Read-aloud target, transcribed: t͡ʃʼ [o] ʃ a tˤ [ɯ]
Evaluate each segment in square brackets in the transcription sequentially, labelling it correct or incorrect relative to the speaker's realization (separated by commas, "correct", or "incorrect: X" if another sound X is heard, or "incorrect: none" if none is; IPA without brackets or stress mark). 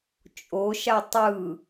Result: correct, correct